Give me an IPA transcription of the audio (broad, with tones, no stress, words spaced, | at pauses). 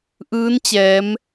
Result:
ʔɯː˧˥nt͡ɕɛː˩˧m